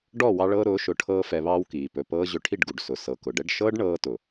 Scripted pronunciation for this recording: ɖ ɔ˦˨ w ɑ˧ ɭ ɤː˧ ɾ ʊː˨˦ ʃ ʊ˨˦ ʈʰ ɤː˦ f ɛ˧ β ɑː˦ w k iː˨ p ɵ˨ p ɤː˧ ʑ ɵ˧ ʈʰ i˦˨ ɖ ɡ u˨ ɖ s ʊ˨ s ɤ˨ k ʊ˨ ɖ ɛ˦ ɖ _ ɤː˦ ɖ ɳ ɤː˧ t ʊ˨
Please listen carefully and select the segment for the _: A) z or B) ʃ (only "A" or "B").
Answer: B